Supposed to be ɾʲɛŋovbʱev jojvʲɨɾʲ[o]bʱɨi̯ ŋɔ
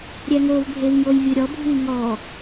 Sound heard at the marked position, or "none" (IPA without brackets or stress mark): ɔ